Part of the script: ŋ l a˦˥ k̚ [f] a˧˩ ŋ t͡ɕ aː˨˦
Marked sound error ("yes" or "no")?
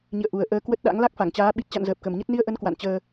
no